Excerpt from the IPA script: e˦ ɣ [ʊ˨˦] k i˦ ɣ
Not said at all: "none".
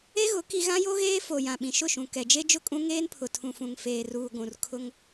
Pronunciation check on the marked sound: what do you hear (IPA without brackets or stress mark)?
ʊ˨˦